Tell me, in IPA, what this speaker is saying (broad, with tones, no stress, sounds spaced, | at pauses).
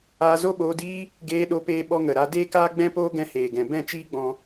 aː˧ z o˦ ɓ oː˧ d iː˦ | ɡ eː˧ ɗ o˧ p eː˧ ɓ ɔ˧ ŋ ə˨ ɾ a˧ d eː˦ k aː˦ ɡ͡b ɛ̃˦ p oː˦ ɡ ɛ̃˧ h eː˨ ɡ ɛ̃˨ b ɛ̃˦˨ t͡ʃ iː˦ ɡ͡b ɔ̃˧